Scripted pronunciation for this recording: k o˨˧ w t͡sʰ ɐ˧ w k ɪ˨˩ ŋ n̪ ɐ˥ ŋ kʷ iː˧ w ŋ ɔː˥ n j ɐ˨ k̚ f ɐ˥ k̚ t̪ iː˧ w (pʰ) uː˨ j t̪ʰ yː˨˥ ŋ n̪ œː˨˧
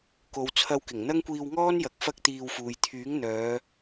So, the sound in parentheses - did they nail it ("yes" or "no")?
no